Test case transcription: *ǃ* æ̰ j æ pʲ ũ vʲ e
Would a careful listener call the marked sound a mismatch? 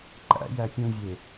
no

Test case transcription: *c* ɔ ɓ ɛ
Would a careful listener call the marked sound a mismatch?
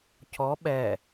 no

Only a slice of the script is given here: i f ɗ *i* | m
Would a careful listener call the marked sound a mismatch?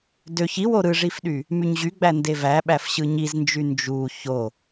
yes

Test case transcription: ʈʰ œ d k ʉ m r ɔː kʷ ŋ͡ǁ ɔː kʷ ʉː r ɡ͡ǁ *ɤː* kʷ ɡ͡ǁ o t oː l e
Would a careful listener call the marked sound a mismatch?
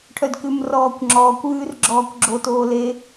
yes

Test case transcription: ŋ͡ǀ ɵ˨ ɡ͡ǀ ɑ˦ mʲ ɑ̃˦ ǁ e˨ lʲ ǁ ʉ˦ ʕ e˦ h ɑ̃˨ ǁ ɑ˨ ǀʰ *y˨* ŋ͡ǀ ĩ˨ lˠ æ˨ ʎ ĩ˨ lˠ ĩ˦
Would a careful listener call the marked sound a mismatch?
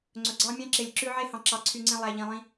no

